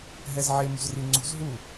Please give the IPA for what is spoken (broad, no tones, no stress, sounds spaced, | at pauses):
ɦ ɛ z ʕ e m ṳ z r i ŋ͡ǀ ṳ z ɦ u